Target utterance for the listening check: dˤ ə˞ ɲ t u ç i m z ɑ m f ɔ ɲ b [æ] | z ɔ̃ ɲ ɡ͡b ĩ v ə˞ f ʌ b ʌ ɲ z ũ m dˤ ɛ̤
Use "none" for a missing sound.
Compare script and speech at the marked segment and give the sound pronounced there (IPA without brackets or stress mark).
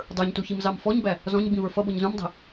æ